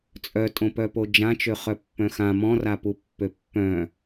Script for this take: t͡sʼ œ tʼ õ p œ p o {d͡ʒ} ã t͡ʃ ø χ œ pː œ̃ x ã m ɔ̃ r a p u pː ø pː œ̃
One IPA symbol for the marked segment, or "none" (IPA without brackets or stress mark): d͡ʒ